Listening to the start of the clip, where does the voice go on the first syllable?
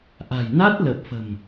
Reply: low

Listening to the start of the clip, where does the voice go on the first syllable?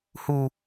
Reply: high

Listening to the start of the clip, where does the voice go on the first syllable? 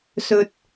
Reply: low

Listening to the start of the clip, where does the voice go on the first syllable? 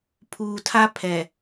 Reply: low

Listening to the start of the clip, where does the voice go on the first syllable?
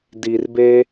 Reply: low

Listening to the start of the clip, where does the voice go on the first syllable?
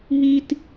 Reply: high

